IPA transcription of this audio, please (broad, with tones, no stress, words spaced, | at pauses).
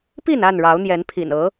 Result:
pi˥˨na˥˨n ɻɑ˨˦ʊ̯n̪jɛ˨˦npʰḭ˨˩n ɤ˨˦